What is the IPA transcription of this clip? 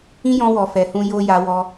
ĩ˦ j ɔ̃˧ w ɔ˨ f ɛ˨ h ũ˧ j o˧ j a˦ w ɔ˦

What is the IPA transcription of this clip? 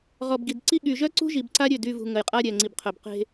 ʁ ɔ˨ b ɡ i˨ d ǀ i˦ ɠ y˨ ʒ œ˦ ǀ ṳ˦ ʒ i˨ b ǀ a˦ ɾʲ ø˦˨ d y˦˨ v ṳ˨ ŋ ə˨ j qʼ a˦ ɾʲ ɛ˨ ŋ͡ǀ i˨ b qʰ œ˨ b q e̤˦

